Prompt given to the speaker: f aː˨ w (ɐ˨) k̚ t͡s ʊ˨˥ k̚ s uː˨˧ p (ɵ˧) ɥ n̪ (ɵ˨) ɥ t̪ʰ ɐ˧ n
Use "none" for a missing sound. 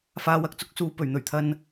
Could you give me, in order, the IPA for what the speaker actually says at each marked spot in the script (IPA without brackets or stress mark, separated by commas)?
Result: ɐ˨, ɵ˨˩, ɵ˨˩